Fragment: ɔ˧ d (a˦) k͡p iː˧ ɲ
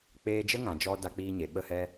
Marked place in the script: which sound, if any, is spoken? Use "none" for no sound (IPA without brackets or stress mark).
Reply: a˧